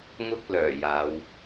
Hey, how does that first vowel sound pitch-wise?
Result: high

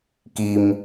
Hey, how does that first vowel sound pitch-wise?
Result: high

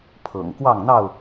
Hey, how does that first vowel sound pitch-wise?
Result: low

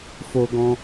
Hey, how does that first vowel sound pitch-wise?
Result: high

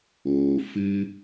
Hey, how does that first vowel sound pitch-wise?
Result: low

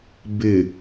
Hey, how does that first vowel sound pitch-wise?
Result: low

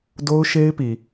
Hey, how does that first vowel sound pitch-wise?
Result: high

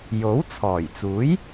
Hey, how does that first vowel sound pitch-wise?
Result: rising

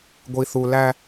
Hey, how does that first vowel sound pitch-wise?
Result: low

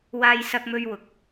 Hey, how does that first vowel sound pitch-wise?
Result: high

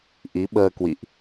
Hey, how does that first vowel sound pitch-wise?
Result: rising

